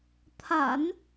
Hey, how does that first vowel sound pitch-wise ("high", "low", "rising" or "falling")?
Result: low